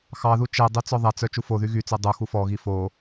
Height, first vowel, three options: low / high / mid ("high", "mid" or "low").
low